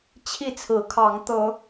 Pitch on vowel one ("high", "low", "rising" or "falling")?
falling